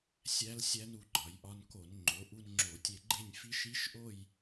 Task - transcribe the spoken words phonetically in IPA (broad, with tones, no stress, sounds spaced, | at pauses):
sʲ æ˦˥ l sʲ æ˦˥ n u˧ ɡ͡ǃ ɒ˩˧ j ʔ ɒ˧ n k o˧˩˧ n ŋ͡ǃ o˩˧ ʔ u˧ n ŋ͡ǁ o˧˩˧ tʲ e˧ ɡ͡ǃ e˥˧ nʲ f i˦˥ ʃ i˦˥ ʃ ʔ o˥˧ j